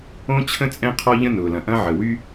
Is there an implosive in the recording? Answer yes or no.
no